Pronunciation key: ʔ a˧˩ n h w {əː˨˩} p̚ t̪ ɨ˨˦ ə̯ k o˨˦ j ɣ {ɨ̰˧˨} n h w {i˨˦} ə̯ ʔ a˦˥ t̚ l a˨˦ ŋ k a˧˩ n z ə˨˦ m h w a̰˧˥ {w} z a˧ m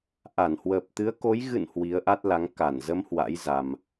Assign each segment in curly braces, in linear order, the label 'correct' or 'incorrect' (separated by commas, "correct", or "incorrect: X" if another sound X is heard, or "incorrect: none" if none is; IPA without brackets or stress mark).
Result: correct, correct, correct, incorrect: j